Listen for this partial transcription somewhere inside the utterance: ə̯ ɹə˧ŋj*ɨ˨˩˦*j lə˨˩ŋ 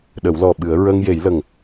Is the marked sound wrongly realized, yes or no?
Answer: yes